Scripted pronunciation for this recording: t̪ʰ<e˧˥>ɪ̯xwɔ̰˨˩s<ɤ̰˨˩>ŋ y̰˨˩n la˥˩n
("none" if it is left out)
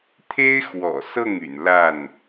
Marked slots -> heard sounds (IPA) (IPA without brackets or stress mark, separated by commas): e˥, ɤ˥˩